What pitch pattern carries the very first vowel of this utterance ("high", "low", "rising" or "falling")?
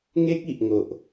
high